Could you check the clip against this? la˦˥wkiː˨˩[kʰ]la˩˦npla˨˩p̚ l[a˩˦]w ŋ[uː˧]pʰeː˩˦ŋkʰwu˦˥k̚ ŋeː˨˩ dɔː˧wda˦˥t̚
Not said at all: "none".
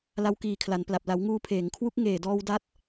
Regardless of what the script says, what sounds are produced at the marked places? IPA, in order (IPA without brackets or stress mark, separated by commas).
kʰ, a˩˦, uː˧